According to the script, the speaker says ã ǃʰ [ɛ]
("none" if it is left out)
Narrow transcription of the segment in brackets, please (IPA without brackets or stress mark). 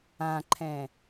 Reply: ɛ̃